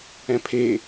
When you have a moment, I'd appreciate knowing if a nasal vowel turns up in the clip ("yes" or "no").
yes